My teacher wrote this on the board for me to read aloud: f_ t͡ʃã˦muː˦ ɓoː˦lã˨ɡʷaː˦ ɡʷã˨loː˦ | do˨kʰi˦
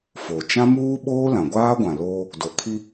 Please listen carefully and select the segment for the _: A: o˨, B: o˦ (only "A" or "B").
A